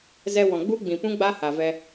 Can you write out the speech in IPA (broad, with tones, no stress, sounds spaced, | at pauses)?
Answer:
z ɛ˧ w ɔ̃˨ ɡ͡b u˦ ɡ͡b ĩ˨ p ũ˦ ɡ͡b a˦ h a˨ v ɛ˧